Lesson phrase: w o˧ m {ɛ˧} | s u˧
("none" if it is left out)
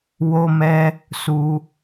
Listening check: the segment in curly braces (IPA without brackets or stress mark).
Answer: ɛ˧